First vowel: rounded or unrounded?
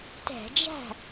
unrounded